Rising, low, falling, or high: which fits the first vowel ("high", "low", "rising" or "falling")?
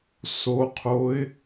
low